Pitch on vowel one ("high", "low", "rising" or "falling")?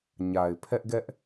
low